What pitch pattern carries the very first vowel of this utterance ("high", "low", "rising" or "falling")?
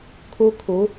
high